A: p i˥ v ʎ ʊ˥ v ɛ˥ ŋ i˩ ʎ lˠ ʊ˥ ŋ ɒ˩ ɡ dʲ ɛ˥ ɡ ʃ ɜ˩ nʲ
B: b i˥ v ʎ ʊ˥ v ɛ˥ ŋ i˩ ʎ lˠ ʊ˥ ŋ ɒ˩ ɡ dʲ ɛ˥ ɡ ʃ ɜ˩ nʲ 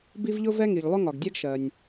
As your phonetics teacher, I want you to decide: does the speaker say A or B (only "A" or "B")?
B